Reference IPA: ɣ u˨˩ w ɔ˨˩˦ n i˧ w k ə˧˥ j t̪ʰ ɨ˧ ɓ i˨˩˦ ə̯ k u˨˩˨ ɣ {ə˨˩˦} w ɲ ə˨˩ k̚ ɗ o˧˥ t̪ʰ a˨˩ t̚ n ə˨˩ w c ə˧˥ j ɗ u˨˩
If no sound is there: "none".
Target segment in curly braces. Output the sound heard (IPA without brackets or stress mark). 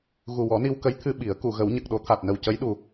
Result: ə˨˩˦